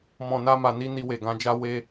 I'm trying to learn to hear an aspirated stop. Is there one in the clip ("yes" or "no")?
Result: no